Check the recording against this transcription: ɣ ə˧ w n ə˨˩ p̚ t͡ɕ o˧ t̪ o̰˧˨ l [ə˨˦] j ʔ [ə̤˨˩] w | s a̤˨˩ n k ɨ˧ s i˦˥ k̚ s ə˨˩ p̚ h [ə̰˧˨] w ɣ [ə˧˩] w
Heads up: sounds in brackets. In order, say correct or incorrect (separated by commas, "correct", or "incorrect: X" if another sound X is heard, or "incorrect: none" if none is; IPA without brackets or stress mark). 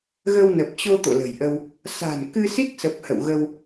incorrect: ə̤˨˩, incorrect: ə˧, correct, incorrect: ə˧